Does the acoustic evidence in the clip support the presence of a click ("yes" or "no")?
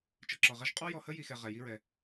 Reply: yes